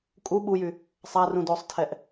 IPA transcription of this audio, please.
kʼu ɓujy | sˤa rũdosˤtʰɛʔ

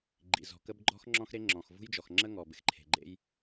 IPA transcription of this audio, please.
ɡ͡ǃḭ˩zɔ̤˩kə˥b ɡ͡ǃɔ̤˥x ŋ͡ǁɔ̃˥xɾe˥ŋ͡ǁɔ̃˩x vṳ˥jd͡ʒɔ˩xŋ͡ǁə˥ŋɔ˩ bɪ˩xǃʰe̤˩ɡ͡ǃḛ˥j

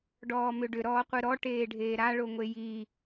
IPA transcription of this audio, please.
ɖɔːmʏɖʏ ɾɔːqʷɯɾɔ ʈeːɖʱeːɾa ɭoŋʷeji

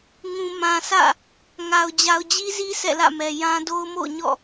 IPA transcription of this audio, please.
ŋũ˨ mã˨sʰä̰˦˨ | ŋa˨ʊ̯ d͡ʑa˨ʊ̯d͡ʑi˦zi˦ sʰɛ̰˦˨lä̰˦˨mɛ˨ jã˦ do˦ʊ̯mo̰˦˨ʊ̯ɲɔ̰˦˨

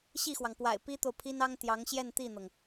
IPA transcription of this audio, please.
ɕi˥˩xwɑ˩ŋpwa̰˨˩ɪ̯ pi˥t̪o˨ʊ̯pʰi˥n ɑ˥ŋt̪jɑ˧˥ŋɕjɛ˥˧n t̪i˥˩n̪ɤ˩ŋ

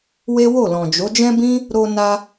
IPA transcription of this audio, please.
we˦wo˦˨lɔ̃˨d͡ʒo˨˦ d͡ʒɛ̃˦bĩ˦ | ɾo˧na˧

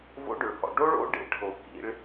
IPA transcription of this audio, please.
vo̰˦˥ɖʏ˨ɭhɔ̰˨ ɖo˦˥ɭo̰˦˥ ɖḛ˨ʈʰo˨ kḭ˦˥ɭ

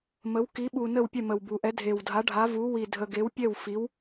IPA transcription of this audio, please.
mə˧˥w ki˧˥ɓu˧ nə˥˧wpʲɛ˥˧mə˧wbu˧ ʔɛ˧˥dʱe˧wdʱa˧˥ ɖʱa˧˥vu˧˥wi˧ dʱə˧ ɡe˧˥wpʲɛ˥˧wfi˧˥w

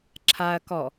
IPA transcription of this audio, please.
ǁʰaɐ̯ kɔ

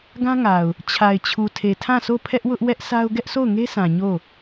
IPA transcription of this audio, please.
ɡã˦ŋa˨ʊ̯ | t͡ɕʰa˨ɪ̯t͡ɕʰu˨tʰe˨ tʰã˦˨sʰo˦˨pʰɛ˦ʔwʊ˦ʔ wɛ˦ʔsʰa˦ʊ̯ ɡɛ˦ʔso˦˨ʊ̯ŋe˦sã˨ ɲo˦˨

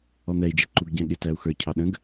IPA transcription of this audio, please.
ɔn̪ɛi̯d͡ʒɪ ǃuɡɟæ̃ɠɪtæu̯ xə˞cʰɑ ɗə̃ɡ

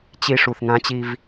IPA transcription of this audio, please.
t͡ɕi˦ ʂu˨θŋã˦t͡ɕi˦v

